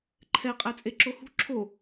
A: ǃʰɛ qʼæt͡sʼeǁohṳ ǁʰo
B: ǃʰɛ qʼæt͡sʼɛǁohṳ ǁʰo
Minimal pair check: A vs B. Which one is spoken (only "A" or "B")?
A